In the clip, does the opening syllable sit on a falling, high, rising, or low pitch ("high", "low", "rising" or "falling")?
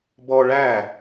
high